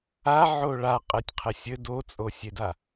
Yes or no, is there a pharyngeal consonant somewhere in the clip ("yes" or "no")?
yes